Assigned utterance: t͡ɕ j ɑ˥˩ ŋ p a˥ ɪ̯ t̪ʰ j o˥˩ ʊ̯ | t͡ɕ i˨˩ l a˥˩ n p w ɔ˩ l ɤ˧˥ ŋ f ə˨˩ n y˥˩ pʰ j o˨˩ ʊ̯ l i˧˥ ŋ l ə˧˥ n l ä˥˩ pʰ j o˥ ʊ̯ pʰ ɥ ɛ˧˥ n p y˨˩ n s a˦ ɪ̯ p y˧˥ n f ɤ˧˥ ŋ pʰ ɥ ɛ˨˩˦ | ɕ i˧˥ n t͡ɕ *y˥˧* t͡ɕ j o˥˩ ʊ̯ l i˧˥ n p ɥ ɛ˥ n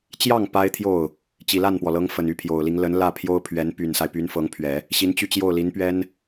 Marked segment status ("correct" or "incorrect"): correct